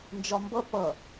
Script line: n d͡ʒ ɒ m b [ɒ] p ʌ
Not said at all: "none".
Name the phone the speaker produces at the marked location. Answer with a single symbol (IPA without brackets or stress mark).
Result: ʌ